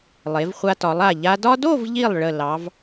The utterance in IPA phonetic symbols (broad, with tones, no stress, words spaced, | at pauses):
lˠe˩˧vχʷa˧tɒ˩˧lˠa˧˩ ʎa˧dɒ˥ do˥˧vʎi˧˩lˠ ɭə˧˩ lɑ˩˧v